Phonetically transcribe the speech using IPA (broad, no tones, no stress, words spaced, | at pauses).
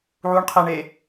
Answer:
ʕuɳqʰeɳe